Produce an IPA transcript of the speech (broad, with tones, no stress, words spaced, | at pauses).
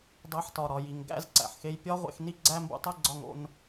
dˤæ˧ħtɒ˨ɾɒ˨ ji˨ŋɡæ̰˦˨zǀæ̰˨ħxe˧j pʲɒ˦ʁʷḛ˧xni˦ ɡ͡ǀæ˦mbṵ˧tˤe˦ɡ͡ǀɒ˧ŋ o̰˧n